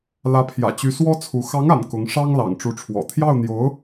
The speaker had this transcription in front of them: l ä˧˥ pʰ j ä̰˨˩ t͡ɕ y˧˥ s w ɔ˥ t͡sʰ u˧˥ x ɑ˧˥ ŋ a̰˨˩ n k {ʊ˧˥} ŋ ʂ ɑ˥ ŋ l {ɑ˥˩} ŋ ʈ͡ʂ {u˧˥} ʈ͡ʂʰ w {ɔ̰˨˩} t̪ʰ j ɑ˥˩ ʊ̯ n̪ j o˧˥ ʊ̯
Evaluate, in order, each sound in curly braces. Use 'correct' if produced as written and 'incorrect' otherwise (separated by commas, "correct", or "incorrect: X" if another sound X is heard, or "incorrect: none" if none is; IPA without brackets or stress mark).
correct, incorrect: ɑ̰˨˩, correct, correct